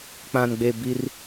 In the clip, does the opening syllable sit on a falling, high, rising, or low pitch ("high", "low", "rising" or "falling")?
low